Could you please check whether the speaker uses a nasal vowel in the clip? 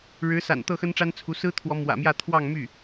no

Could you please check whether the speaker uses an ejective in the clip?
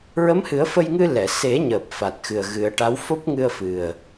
no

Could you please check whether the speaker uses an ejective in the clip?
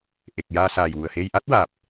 no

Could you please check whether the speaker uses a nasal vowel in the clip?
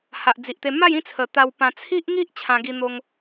yes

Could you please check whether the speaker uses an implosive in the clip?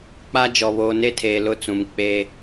no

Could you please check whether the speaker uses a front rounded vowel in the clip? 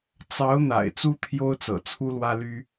yes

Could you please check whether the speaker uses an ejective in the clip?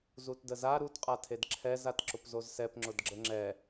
yes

